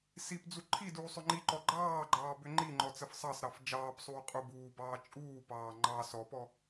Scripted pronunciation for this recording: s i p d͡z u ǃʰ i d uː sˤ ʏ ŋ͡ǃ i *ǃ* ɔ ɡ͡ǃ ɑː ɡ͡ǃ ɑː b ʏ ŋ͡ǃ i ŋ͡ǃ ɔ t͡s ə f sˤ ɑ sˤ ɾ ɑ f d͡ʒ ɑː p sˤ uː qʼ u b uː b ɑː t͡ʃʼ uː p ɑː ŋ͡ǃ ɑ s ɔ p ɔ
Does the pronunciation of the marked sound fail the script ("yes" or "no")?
no